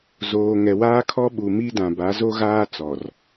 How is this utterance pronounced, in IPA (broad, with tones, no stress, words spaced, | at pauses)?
zoː˨ ŋɛ˨waː˦kʰɔ˦ ɓu˨mi˦dã˨ba˨˦ zo˦ɣaː˦ t͡sɔ˨r